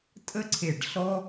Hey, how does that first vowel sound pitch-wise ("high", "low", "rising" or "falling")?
high